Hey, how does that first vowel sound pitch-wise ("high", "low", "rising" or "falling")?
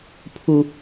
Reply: high